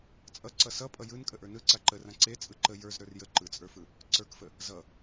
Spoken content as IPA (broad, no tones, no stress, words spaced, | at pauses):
t͡sʼʌ ǀʌsʌpʼʌ jɯn kʼəʔə˞nɯ ǀaǃərã ǀe t͡sʼɯǃə jə˞z ɾə˞rjə ǃɯt͡sʼə˞fɯ | ǀə˞kfə | zʌ